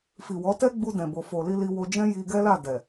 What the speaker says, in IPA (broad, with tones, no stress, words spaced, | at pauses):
fi˨ wɔ˨˦tɛ˦ ɡ͡bu˧dɛ̃˨bo˨fo˨ li˧li˧wo˧d͡ʒɛ̃˦ ji˧ɡɛ˦la˦˨ dɛ˨